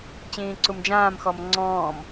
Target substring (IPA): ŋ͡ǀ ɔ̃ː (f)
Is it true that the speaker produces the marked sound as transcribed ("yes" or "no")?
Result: no